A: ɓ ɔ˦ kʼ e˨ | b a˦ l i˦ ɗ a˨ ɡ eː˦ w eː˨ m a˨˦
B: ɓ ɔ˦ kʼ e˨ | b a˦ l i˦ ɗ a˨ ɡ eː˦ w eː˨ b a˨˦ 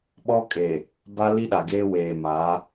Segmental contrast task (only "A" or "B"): A